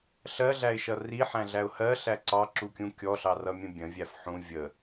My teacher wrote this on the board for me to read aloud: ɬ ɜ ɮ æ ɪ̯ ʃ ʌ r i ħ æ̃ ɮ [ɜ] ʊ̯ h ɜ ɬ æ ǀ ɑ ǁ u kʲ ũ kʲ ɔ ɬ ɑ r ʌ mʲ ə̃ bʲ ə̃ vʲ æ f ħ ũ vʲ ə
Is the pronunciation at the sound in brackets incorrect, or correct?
incorrect